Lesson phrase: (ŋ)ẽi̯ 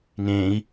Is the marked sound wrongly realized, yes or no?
no